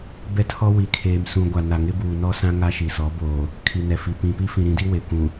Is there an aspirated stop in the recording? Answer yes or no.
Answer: yes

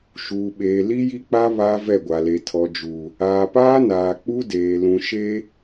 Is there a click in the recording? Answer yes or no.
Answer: no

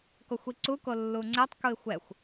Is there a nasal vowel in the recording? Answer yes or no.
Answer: no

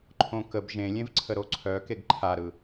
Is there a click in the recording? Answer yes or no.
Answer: yes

